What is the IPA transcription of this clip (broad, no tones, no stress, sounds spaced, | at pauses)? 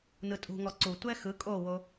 n ɯ tʼ ṳ ŋ ɔ ǀ u tʷ ɛ x ɯ kʼ o w o